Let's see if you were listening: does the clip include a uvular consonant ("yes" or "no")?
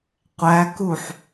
yes